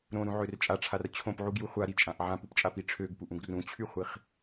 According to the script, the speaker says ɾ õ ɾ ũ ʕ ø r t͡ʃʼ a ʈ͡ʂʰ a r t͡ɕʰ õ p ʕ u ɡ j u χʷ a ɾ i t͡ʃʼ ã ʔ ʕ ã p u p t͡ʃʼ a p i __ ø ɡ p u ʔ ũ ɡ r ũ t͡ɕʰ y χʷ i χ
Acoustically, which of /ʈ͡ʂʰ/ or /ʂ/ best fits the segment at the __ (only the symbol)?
ʈ͡ʂʰ